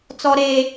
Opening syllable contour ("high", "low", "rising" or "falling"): high